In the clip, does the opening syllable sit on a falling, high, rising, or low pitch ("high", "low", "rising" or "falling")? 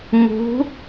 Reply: rising